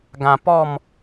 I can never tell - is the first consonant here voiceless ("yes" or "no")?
no